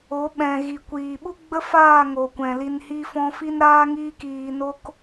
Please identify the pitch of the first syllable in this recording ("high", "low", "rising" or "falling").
rising